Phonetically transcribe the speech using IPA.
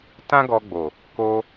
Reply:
tã˦ɡɔ˧ɡ͡bo˨ | ko˧

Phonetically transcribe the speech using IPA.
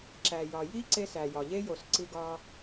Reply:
ǁæ˨jɒ˨ ji˦ ǀe˦sæ˨jɒ˨ ʎe˦jo˨s ǀi˦ɡɒ˦

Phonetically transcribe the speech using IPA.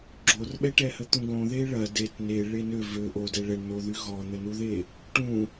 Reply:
ɡ͡ǁorɓɛʈɛhə t̪ũɡõ ðeɭɐ det ne ɭenø vø ʔodɛ ɭɛɳnoðy ɣɔn̪ənuðe | ʈũ

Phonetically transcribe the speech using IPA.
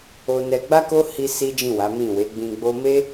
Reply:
o˧nɛ˧ ɡ͡ba˦ko˦hi˧ si˦d͡ʒĩ˦˨ wa˨˦mĩ˦˨ we˨˦ɡ͡bĩ˧ɡ͡bo˦ me˦

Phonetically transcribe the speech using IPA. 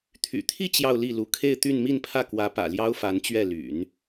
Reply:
t̪ʰy̰˨˩t̪ʰi˥˧ t͡ɕjɑ˥˧ʊ̯li˥˩lu˧˥ kʰe˥˧ɪ̯t̪y˥˧n mi˥˧npʰä˥˩kwä˧˥pä̰˨˩ ljɑ˥ʊ̯fa˧˥nt͡ɕɥɛ˥˩ ly̰˨˩˦n

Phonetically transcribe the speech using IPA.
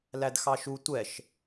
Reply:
lædxɑʃu tʷɛʃ

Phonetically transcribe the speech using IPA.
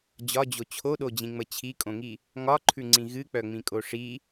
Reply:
d͡ʑɒd͡ʑo t͡ɕʰoɗod͡ʑĩŋ͡mə t͡ɕʰikʼõŋi | ŋɒǃʰʉŋ͡ǀĩ ɣɨk͡pœŋ͡mĩkʼo ʂi

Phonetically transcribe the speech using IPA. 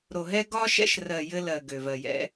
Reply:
ɾo˨ɦɛ˦ ɡɒ˦ʃɛ̰˦ʃrɜ˨ jɘ˦lɜ˨ ɡø˨vɜ˨jɛ̰˦

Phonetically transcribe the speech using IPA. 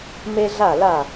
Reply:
me˥ɮa˥˩la˥˩

